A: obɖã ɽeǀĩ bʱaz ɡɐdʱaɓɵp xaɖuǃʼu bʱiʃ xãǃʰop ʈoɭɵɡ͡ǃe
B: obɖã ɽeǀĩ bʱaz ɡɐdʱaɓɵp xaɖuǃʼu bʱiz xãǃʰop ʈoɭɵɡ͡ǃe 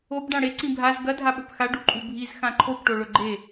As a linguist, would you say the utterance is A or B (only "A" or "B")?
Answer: B